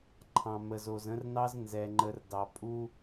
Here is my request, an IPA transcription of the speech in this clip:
ǃʰ ɑ̃˨ m ə˨ z o˨ z ə̃˦ r n ɑ˦ z n z ɛ˨ ŋ͡ǃ ə˨ r d ɑ˨ pʼ u˦

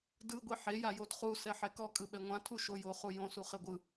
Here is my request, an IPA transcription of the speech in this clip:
d ɯ ɡʷ i ħ e j a j o d χ u s ɛ ħ ɛ k ɔ kʼ ɯ ɓ ɛ ŋʷ ã tʰ u ʃ o j o χ u j õ s u χ e ɡʷ ɯ

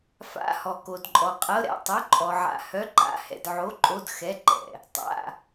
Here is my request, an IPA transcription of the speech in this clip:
f a̰˩˧˩ h ɔ˩ k o˩ d ǃʼ ɔ˩ qʼ ɤ˩˧˩ ɾ ɛ̰˩˧˩ tˤ ɵ˩˧˩ ǃʼ ɔ˩ ʕ a̰˩ h œ˩˧˩ ǃ a̰˩˧˩ h ɛ̰˩ d ʕ o˩˧˩ ǃʼ o˩˧˩ d x ɛ˩˧˩ ǃ ɛ̰˩ | tˤ a̰˩˧˩

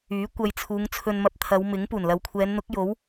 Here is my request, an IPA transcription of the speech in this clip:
yː˨˥ kʷ ɐ˧ j t͡sʰ uː˨˧ ŋ t͡sʰ ɵ˧ n m ɐ˧ p̚ t̪ʰ ɐ˨˧ w m ɪ˨˥ ŋ p uː˨˩ n l ɐ˨ w kʷʰ ɛː˨˧ n n̪ ʊ˨˥ k̚ j o˨˥ w

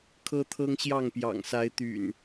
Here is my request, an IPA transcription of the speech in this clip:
kʰ ɤ˦ t̪ʰ ɤ˦ ŋ ɕ j ɑ˥˨ ŋ p j ɑ̰˨˩ ŋ s a˨˦ ɪ̯ t̪ y̰˨˩ n

